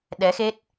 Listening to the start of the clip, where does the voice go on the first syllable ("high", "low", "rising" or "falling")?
rising